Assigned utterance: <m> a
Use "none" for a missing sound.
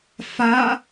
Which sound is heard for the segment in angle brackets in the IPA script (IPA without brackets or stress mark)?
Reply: f